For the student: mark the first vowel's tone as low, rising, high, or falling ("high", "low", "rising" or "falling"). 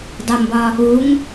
low